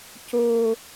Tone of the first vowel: high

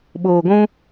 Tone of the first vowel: low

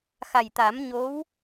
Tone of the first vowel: low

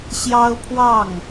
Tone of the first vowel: high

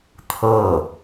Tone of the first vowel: falling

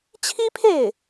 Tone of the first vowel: high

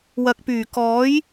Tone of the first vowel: low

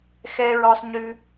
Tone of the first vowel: high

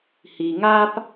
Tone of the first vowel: low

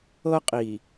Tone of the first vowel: high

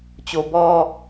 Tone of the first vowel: low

